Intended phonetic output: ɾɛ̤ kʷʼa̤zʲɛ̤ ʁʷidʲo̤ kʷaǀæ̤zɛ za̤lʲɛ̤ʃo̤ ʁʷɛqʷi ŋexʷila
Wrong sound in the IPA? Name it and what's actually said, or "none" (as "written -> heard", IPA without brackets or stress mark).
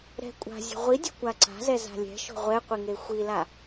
æ̤ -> a̤